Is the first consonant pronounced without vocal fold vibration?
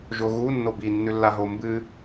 no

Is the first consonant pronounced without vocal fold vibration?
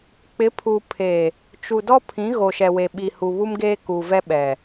yes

